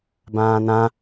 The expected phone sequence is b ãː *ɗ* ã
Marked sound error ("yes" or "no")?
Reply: yes